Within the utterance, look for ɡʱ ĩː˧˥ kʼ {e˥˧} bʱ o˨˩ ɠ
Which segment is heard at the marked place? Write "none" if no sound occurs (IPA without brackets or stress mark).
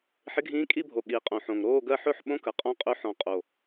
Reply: i˥˧